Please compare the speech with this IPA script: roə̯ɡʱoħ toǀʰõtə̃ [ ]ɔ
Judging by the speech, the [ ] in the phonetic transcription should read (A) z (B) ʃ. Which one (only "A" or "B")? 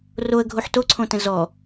A